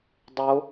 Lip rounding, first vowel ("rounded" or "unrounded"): rounded